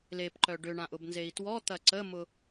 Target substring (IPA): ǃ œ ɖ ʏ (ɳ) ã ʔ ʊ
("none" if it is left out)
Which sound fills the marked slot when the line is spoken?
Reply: ɳ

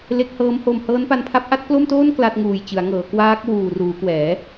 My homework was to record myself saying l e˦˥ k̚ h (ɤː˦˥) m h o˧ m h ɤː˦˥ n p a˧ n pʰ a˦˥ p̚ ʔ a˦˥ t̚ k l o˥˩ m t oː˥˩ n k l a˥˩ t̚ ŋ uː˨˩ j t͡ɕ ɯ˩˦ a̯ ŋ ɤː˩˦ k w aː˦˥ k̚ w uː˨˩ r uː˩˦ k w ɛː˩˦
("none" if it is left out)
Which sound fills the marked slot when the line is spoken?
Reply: ɤː˦˥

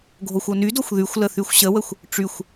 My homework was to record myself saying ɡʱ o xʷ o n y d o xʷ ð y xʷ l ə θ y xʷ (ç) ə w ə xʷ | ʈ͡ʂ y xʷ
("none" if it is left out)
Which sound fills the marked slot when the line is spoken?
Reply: ɕ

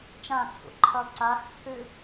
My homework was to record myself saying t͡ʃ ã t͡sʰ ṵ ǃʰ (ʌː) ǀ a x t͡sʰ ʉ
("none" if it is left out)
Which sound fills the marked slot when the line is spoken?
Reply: ʌː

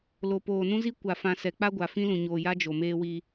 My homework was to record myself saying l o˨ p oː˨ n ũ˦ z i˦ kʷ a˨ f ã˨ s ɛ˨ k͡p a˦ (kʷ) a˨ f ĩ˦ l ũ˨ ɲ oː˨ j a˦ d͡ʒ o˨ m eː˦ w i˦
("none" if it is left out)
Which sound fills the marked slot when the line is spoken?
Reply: ɡʷ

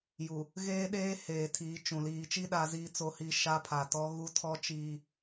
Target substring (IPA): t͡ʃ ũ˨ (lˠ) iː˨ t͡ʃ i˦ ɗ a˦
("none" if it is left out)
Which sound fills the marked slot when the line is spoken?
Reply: l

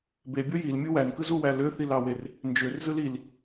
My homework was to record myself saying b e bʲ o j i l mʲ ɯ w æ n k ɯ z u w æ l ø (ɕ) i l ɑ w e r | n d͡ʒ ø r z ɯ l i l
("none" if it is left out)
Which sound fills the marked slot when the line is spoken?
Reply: θ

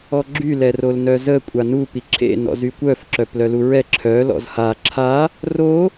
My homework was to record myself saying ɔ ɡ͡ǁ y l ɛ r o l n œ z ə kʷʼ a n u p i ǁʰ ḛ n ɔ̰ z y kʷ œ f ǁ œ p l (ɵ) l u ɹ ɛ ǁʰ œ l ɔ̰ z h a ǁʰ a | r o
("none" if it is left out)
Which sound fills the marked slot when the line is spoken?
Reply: œ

